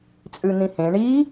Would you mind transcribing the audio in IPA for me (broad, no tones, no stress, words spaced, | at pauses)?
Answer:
t͡sʼʉn̪ĩhẽ ɳi